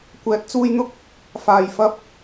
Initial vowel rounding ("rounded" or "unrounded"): unrounded